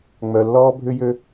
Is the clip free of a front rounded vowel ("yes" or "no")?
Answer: no